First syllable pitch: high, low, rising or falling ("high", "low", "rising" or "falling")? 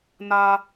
high